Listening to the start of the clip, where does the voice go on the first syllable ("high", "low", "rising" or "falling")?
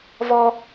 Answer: high